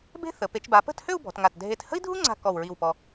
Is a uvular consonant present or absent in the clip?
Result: absent